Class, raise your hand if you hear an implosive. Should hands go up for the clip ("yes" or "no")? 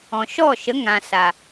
no